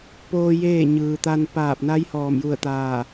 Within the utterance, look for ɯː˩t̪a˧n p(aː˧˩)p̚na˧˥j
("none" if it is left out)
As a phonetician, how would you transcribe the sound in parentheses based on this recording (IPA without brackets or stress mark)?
aː˧˩